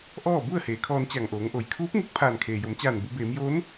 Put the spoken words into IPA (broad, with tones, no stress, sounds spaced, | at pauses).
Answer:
ʔ ɔː˥˨ b u˥˨ ə̯ h eː˩˧ kʰ ɔː˧ n t͡ɕ a˧˩ ŋ ʔ oː˩˧ ŋ ʔ o˩˧ j kʰ uː˧˥ p̚ ŋ e˧ k̚ pʰ aː˧˩ n kʰ eː˩ j o˩˧ m t͡ɕ aː˧˩ n b u˩˧ b eː˩˧ m j oː˧˥ n